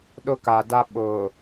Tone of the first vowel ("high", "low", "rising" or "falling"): high